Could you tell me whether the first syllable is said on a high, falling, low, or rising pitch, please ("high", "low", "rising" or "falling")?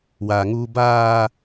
low